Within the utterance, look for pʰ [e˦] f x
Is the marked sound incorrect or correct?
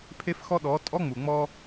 correct